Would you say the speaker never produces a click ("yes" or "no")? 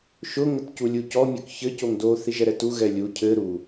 yes